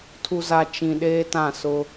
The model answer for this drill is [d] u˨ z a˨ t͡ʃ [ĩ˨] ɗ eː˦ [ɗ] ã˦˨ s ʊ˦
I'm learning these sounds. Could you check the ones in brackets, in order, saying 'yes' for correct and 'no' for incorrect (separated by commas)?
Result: no, yes, no